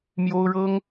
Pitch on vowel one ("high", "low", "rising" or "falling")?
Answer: high